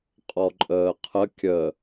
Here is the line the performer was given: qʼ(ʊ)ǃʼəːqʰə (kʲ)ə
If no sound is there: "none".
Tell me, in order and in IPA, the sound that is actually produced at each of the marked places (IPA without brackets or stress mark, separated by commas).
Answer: ɔ, kʲ